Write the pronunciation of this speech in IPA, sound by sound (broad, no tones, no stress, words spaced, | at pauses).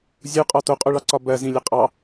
zʲuqʼɒ toqʼuɭɑǀɒ bɜzĩlʲə qʼɑ